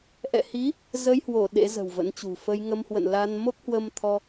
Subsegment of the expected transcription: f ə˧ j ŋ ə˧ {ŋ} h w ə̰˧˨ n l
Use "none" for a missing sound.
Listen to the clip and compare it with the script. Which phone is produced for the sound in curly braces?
m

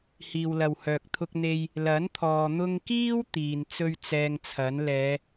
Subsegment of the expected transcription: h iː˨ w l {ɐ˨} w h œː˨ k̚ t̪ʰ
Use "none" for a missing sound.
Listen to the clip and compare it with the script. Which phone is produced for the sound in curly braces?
ɐ˨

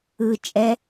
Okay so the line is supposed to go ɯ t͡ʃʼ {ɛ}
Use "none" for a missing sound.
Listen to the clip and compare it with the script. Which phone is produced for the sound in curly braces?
ɛ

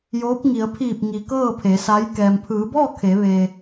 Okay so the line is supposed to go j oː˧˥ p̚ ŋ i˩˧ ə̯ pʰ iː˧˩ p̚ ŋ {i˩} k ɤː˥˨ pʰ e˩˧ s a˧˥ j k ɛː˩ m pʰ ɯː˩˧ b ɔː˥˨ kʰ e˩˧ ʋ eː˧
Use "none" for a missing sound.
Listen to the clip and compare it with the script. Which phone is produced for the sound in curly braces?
i˩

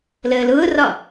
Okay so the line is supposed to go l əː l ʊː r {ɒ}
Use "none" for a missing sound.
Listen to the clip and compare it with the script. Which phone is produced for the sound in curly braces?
ɒ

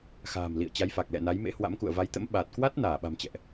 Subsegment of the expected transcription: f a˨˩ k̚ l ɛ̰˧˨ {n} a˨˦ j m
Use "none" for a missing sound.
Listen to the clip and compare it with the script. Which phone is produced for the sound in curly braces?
n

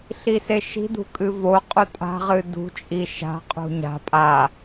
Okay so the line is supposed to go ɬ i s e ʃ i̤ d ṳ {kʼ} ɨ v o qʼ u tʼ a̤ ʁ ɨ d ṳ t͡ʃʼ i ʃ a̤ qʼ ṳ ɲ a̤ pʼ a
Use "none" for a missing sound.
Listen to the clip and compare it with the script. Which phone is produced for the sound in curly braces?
kʼ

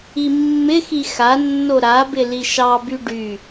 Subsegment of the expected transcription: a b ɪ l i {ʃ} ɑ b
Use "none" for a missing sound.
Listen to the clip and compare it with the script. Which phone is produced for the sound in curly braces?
ʃ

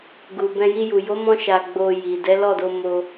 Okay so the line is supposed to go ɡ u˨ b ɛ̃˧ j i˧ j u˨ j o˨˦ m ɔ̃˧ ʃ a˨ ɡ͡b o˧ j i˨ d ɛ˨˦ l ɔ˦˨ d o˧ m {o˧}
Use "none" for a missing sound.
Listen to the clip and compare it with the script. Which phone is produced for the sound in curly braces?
o˧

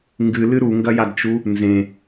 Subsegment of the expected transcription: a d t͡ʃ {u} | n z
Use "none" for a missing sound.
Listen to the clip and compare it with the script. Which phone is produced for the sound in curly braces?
u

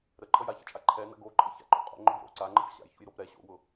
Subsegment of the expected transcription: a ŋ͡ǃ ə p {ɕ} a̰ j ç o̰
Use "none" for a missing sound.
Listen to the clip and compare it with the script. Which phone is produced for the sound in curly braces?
ɕ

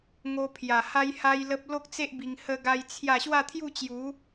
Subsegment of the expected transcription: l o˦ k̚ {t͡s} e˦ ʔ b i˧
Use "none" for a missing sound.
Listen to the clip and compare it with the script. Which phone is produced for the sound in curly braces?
t͡s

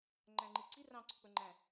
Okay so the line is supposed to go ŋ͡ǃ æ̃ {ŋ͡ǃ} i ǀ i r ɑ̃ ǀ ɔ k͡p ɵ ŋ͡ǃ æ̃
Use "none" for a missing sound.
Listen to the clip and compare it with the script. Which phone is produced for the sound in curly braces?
ŋ͡ǃ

